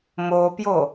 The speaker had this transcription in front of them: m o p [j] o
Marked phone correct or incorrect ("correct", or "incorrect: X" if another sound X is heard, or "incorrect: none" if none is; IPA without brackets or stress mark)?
correct